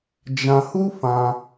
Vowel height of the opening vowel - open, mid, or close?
open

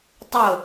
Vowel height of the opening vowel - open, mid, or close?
close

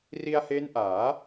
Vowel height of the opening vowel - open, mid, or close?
close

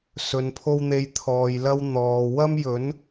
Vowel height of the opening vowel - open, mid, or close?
mid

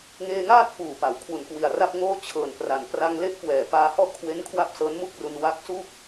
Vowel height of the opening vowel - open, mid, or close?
mid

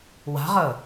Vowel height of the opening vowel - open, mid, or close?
open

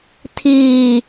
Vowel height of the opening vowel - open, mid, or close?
close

